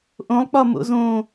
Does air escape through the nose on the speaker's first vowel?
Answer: yes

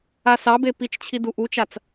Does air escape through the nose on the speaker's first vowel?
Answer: no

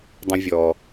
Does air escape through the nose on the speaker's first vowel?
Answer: yes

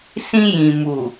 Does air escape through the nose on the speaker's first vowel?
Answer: yes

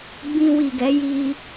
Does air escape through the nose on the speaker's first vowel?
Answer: yes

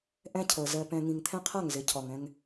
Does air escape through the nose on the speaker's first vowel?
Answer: yes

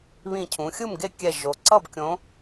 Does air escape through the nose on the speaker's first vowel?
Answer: yes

